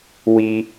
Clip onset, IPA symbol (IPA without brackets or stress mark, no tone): w